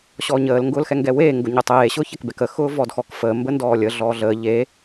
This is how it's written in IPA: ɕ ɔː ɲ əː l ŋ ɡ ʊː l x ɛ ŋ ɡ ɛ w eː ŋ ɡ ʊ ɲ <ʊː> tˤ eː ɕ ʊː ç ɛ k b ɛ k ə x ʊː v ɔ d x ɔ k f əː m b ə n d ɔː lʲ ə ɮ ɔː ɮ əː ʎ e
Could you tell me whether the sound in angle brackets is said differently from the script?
yes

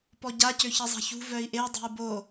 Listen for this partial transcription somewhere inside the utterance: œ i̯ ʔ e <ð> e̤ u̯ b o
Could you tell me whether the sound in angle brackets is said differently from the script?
yes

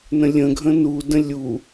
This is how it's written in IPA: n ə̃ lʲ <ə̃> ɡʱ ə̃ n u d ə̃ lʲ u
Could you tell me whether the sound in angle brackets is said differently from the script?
no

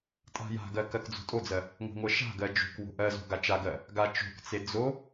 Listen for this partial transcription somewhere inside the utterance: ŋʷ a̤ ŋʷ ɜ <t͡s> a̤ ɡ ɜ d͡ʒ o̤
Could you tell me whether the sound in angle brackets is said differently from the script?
yes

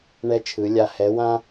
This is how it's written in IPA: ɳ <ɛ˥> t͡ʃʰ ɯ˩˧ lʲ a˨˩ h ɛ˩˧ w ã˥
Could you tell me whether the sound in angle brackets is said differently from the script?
yes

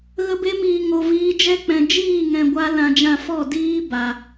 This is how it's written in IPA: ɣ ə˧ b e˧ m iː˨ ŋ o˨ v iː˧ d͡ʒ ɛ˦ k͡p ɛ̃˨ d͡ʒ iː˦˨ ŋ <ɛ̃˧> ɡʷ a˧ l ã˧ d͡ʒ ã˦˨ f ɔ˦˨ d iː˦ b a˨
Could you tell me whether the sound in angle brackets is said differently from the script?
yes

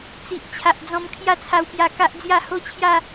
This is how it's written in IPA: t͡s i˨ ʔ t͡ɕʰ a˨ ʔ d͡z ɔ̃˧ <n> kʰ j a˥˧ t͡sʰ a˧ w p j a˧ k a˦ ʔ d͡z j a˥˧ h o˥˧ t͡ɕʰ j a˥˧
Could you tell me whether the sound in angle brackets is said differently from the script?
yes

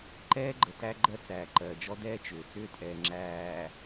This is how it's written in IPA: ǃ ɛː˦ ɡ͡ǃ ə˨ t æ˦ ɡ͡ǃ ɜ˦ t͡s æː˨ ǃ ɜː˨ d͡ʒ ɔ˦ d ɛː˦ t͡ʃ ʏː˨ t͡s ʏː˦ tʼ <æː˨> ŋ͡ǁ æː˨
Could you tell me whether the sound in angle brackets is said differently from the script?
yes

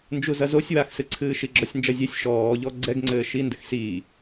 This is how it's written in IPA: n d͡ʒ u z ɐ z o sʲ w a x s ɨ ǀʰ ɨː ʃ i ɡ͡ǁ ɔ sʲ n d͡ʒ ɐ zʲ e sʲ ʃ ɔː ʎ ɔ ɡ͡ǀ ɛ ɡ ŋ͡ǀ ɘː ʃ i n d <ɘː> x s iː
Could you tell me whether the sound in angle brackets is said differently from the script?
yes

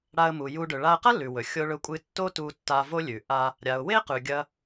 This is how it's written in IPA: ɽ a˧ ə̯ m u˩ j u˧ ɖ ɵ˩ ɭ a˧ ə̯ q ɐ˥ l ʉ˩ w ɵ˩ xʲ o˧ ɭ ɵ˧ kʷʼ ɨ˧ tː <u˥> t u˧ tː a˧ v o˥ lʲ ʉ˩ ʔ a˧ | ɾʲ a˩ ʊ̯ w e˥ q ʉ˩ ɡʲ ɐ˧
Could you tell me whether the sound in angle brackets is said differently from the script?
yes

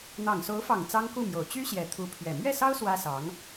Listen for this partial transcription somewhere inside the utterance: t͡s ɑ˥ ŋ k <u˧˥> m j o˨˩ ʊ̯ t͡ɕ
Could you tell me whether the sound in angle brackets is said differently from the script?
yes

